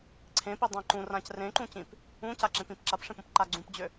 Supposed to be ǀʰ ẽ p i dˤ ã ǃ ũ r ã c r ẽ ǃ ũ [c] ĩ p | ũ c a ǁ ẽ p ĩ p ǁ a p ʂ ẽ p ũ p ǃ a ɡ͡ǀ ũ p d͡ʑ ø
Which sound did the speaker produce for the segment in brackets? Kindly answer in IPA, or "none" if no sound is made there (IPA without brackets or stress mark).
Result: c